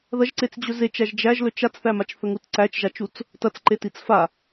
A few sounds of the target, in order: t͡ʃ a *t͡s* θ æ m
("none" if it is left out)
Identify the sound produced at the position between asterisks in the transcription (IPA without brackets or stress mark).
t͡s